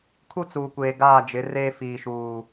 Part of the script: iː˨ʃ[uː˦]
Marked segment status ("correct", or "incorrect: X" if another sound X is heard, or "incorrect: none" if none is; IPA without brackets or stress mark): incorrect: uː˨